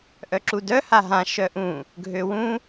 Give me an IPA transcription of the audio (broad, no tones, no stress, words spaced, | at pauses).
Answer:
ʔœǁudœ haɦã ʃœʔũ | ɡʱøwũ